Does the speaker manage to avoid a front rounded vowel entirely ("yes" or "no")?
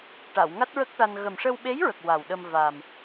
yes